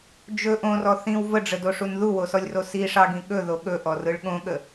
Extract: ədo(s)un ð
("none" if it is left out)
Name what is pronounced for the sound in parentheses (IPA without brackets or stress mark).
ʂ